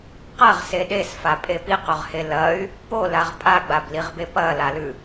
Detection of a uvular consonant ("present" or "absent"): present